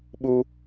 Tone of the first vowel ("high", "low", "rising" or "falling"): high